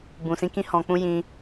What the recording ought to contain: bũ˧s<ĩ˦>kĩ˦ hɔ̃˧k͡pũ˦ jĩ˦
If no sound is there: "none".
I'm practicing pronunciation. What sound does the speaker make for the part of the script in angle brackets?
ĩ˦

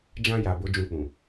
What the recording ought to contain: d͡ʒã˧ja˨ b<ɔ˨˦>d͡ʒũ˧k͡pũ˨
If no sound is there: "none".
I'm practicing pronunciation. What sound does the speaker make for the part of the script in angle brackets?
o˨˦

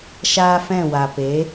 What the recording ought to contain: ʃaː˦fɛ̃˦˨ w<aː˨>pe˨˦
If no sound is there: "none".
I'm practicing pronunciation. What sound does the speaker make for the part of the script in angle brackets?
a˨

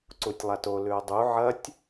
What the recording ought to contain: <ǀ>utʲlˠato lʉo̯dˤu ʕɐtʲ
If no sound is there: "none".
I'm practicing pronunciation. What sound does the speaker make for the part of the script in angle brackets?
ǀ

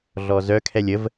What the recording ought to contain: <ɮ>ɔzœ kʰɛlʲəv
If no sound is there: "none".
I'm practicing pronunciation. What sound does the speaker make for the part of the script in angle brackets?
ɮ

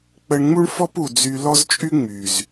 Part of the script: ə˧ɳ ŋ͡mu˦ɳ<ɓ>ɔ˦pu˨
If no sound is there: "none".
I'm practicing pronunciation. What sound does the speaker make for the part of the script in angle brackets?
f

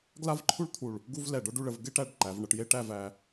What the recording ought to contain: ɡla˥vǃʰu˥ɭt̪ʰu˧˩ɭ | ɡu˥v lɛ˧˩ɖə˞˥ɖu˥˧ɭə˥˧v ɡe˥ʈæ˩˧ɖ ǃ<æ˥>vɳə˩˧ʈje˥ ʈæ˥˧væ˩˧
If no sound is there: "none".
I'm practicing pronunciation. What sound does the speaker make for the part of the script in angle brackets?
æ˩˧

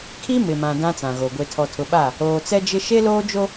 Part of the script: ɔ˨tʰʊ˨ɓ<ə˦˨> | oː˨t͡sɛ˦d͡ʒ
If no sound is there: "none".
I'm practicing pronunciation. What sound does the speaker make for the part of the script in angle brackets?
a˦˨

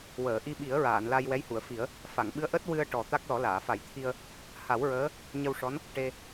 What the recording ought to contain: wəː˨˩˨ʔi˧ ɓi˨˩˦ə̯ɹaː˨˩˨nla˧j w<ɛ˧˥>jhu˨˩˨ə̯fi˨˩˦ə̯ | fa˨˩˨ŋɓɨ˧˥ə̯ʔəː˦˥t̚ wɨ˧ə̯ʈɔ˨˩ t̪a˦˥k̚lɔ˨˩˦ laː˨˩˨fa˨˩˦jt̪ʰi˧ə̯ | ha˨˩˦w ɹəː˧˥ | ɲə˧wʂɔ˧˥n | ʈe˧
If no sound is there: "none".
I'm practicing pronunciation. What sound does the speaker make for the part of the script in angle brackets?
ɛ˧˥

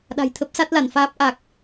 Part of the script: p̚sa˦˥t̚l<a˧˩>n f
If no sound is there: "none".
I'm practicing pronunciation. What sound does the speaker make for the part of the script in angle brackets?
a˧˩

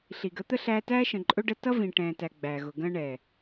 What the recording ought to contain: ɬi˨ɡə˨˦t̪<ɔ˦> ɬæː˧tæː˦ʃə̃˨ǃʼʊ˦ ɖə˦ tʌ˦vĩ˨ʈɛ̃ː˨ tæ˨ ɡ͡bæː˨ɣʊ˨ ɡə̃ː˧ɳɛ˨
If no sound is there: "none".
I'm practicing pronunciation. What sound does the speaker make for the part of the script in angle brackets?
ə˦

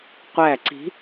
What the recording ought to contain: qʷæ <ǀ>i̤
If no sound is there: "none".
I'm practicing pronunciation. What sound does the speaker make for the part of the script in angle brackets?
ǀ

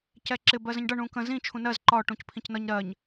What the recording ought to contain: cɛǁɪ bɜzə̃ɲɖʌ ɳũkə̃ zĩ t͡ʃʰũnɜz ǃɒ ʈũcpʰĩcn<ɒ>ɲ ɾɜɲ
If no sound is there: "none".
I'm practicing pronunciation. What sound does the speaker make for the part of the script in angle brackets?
ʌ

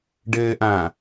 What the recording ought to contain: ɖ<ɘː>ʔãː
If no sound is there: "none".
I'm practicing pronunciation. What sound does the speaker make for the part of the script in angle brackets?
ɘː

